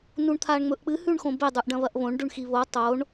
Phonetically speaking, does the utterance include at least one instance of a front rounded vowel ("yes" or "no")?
no